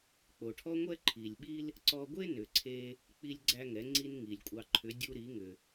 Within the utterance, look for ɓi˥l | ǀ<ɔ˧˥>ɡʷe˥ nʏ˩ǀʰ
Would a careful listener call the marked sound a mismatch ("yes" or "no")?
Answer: yes